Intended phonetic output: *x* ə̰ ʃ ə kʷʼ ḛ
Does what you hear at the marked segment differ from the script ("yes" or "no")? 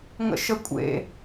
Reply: yes